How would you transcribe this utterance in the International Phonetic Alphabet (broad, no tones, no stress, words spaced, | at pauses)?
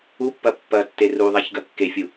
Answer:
upːɐ pːɐtːe ruðˤaçɡɐ kːefʲu